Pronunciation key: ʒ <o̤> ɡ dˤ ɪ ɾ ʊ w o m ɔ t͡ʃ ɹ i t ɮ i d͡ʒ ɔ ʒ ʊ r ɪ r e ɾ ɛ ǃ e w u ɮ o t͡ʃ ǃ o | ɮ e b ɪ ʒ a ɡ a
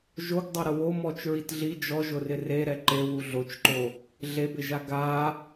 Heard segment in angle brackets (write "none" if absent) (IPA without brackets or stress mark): o